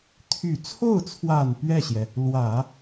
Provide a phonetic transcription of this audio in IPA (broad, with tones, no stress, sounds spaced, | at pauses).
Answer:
t̪ʰ y˨˩ t͡sʰ o˥˩ ʊ̯ t͡sʰ w a˨˩ n p ɥ ɛ˥˩ ɕ j ɛ˩ | l w ä˨˩˦